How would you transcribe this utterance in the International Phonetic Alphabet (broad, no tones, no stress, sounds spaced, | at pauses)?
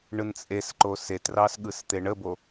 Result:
ɳ ɯ n t͡sʼ e s ǃ o s e t r ɑ s ɠ ɯ s t̪ e ɳ ə b o